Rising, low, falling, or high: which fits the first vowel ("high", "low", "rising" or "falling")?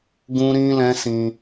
high